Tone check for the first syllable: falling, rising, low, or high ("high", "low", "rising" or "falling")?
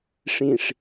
low